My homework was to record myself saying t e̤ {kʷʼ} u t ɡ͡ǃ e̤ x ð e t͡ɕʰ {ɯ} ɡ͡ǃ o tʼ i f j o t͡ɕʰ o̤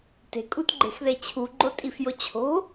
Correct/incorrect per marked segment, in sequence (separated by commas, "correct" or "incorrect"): incorrect, incorrect